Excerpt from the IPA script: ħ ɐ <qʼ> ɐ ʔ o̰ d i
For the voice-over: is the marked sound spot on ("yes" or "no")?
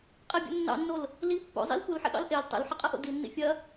yes